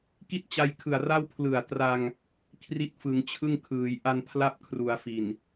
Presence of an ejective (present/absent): absent